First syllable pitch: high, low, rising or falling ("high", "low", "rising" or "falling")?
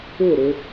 falling